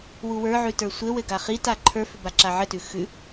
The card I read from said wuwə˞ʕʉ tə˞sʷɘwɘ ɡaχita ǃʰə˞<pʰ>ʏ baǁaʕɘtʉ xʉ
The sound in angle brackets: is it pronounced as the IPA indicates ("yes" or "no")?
no